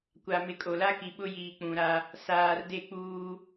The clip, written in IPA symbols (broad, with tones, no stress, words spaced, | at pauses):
kʷa˨ mɪ˨kʼo˨la˦ki˨ ɓʊ˦jiː˨k͡pũ˨ɾa˦ | saː˨rde˦˨ k͡puː˦